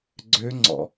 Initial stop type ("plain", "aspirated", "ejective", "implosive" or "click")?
click